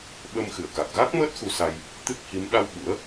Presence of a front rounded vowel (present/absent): absent